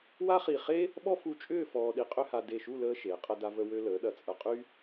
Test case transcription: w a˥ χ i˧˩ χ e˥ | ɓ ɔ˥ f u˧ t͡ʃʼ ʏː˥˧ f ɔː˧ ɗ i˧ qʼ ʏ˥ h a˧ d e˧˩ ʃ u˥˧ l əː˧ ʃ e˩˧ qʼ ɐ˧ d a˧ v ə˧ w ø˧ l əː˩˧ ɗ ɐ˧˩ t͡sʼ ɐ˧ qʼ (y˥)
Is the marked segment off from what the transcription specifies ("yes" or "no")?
no